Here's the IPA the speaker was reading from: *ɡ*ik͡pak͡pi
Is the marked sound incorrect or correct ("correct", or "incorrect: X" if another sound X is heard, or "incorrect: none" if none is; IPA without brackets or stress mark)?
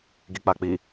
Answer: correct